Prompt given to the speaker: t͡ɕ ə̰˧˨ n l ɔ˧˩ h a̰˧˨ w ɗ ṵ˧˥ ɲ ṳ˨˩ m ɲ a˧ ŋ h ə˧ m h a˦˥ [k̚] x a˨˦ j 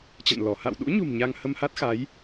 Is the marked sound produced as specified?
no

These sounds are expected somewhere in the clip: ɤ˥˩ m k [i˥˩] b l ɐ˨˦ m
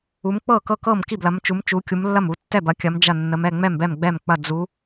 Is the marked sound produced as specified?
yes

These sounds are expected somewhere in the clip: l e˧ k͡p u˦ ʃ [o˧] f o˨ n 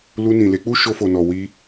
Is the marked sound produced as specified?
yes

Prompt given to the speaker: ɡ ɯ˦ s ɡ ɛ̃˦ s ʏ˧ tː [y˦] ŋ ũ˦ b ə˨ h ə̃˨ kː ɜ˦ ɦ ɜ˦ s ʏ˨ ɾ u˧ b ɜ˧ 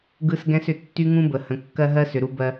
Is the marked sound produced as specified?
yes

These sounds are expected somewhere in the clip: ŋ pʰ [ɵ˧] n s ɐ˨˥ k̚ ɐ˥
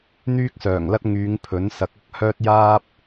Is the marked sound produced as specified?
no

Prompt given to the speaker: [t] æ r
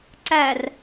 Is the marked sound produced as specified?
no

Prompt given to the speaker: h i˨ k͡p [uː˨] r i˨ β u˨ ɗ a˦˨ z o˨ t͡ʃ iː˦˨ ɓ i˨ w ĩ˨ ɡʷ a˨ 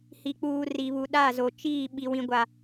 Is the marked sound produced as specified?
yes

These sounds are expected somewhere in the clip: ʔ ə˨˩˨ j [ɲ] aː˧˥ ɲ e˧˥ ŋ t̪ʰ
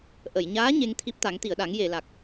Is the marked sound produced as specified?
yes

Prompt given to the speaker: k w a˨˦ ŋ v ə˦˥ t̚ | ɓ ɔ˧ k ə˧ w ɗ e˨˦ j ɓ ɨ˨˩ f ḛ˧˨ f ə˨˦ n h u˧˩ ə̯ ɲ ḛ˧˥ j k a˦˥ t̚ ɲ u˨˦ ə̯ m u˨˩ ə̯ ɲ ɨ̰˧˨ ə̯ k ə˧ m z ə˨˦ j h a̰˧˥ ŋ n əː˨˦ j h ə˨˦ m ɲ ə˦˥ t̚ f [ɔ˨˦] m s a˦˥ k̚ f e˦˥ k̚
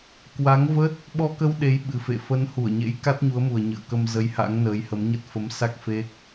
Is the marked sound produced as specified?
no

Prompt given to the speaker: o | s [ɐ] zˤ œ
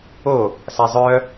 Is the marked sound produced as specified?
no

